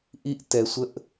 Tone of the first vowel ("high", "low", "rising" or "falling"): high